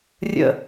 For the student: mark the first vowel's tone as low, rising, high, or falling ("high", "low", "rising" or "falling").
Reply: falling